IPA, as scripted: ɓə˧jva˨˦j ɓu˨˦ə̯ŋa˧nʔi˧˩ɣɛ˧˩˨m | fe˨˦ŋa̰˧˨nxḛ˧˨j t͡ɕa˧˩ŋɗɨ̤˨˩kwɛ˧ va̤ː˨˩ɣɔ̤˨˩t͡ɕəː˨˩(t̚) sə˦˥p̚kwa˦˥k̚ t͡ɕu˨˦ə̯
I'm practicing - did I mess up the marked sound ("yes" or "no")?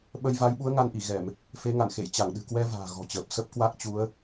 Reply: yes